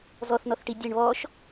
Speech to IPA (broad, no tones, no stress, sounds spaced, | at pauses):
z ɔ θ n ɔ θ ʈ i dʲ ɛ ɳ β ɔ ʃ